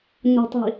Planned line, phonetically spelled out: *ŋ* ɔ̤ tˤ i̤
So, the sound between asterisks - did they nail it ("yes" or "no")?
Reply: no